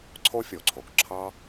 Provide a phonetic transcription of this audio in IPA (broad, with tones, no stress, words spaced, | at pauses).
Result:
ǀʰo˥fʲo˩ǀʰo˩k ǁʰɑ˥